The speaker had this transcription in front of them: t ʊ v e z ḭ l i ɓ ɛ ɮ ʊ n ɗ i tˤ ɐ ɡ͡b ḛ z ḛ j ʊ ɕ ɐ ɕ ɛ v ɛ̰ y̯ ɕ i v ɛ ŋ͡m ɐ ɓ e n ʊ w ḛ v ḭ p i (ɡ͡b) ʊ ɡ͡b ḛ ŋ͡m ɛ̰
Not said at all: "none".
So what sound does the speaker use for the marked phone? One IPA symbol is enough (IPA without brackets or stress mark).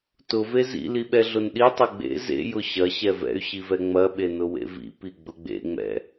ɡ͡b